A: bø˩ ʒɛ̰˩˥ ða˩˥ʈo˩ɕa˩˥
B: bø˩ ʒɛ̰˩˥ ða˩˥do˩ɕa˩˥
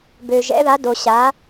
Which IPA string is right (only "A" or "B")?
B